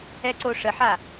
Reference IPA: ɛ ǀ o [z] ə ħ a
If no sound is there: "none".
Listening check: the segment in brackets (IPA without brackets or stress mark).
ʂ